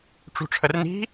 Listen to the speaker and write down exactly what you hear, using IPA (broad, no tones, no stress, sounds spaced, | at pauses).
ʈ͡ʂ ṳ ʈ͡ʂʰ ə r n i̤